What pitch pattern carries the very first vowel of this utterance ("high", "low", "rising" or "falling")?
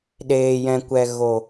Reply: low